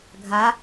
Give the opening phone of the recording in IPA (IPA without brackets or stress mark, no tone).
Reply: ɡʱ